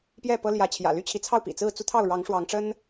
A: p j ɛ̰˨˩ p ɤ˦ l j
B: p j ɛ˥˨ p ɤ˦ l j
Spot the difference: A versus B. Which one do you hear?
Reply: B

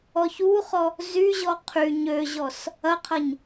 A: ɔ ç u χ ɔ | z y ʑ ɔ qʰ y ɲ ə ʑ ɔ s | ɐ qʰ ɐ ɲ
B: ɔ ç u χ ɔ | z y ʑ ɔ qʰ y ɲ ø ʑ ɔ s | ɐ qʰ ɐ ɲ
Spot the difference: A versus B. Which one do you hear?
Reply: B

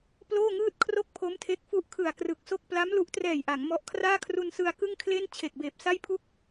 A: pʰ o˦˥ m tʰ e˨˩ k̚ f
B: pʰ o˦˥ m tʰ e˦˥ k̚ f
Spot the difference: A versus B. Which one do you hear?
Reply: B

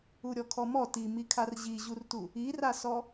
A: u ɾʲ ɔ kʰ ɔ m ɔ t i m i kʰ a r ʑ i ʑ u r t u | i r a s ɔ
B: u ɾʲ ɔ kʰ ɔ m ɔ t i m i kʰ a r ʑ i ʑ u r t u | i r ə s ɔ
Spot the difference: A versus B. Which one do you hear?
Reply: A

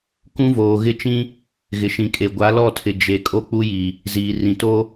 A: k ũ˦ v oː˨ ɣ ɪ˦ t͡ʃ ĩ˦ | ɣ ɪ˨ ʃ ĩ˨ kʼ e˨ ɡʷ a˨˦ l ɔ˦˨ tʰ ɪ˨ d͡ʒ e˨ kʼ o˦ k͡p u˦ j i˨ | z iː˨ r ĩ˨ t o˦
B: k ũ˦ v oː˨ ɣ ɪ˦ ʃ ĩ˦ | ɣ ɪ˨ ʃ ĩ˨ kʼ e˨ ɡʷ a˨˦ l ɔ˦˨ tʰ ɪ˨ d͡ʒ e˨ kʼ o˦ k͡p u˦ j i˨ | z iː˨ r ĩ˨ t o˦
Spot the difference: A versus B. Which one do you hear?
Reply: A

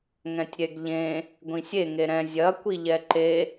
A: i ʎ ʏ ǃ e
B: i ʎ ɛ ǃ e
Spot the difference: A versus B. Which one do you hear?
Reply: B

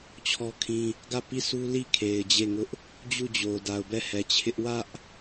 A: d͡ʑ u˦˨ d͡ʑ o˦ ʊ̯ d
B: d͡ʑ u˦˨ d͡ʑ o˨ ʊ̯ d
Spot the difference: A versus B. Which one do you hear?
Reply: B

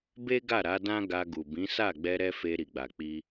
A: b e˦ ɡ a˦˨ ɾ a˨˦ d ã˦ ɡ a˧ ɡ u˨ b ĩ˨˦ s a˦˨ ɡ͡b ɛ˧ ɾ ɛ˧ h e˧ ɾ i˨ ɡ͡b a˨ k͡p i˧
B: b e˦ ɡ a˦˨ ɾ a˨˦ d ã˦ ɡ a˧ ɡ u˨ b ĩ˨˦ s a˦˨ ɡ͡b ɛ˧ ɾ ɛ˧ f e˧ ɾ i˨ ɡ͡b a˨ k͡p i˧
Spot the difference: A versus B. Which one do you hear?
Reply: B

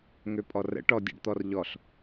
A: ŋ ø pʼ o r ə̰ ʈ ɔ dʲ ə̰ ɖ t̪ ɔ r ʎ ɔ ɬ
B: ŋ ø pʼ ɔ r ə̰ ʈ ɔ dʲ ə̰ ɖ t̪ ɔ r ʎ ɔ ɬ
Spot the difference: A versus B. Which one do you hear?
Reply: B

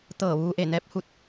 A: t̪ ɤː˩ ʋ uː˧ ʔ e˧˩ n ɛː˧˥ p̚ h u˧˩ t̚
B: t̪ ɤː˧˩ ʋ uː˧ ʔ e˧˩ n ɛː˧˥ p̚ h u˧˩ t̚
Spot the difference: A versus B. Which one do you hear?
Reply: B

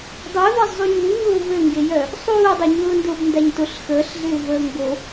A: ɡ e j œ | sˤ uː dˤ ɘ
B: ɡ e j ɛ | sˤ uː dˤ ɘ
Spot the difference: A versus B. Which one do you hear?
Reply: A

